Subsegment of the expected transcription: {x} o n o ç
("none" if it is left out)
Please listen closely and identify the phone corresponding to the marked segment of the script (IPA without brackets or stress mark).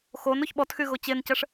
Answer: x